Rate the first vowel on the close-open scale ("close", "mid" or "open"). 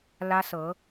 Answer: open